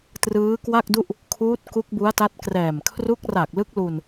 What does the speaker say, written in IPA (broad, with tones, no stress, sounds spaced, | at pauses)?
t r ɯː˦˥ k w a˥˩ k̚ d u˥˩ ʔ | kʰ uː˦˥ t̚ k u˦˥ k̚ b u˦˥ a̯ t a˦˥ t̚ k r ɛː˨˩ m kʰ r u˦˥ k̚ r a˨˩ k̚ l ɯ˦˥ k̚ l u˧ n